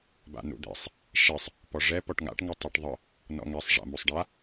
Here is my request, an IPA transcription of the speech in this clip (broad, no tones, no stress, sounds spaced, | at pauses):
b a̰ n ṵ d̪ ḛ sˤ | ʃ e sˤ | p ɔ ʐ ɛ p ɔ ʈ ŋ a̰ ʈ ŋ ə tˤ ɤ ʈ ðˤ ə | n ɔ̰ ŋ ɛ sˤ ʐ a̰ m u sˤ ɖ a